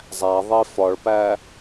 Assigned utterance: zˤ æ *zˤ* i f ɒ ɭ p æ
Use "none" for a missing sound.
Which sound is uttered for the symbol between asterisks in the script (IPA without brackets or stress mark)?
ðˤ